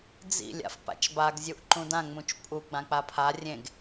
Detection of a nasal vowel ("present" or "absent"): present